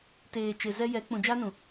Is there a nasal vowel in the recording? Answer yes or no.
yes